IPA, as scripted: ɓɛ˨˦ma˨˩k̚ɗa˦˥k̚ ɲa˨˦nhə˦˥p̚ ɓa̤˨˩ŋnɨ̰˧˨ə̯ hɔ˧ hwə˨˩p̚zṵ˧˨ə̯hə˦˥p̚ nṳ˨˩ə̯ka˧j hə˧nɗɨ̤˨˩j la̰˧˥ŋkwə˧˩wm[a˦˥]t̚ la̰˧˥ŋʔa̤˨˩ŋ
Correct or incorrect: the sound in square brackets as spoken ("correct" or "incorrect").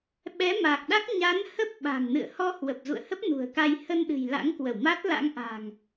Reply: correct